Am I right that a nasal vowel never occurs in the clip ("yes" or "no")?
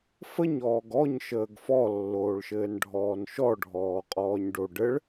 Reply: yes